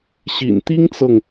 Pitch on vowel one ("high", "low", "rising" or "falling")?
low